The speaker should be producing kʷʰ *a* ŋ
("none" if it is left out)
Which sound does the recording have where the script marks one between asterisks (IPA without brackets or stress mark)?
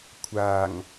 a